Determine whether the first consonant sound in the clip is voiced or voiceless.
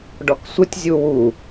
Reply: voiced